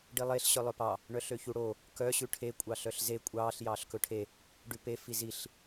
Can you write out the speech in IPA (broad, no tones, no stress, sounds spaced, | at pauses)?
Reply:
ɖ i lˠ e ɬ ɕ œ lˠ œ p ɑ | ɳ œ ɬ ø ç u ɽ o | k œ ɕ ʉ ʈʰ e kʷʼ ɑ ɬ œ ɬ z e kʷʼ ɑː ɬ j ɑː ɬ k ɵ ʈʰ e | ɖ ʉ p e f i z i ɬ